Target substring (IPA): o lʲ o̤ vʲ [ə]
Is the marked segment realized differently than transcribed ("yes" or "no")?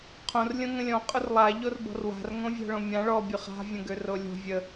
no